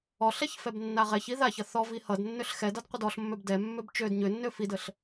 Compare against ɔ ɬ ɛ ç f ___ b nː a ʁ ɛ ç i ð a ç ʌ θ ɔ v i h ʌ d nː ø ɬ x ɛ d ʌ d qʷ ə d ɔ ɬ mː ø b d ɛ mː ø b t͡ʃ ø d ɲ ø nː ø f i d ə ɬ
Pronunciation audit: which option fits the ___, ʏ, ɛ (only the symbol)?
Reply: ɛ